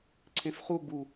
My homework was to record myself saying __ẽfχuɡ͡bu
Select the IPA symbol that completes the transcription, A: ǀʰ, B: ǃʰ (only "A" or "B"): A